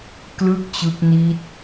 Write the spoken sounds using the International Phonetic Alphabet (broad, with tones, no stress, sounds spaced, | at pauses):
k l ɯ˥˩ k̚ t͡ɕ ɯ˦˥ k̚ n i˦˥ t̚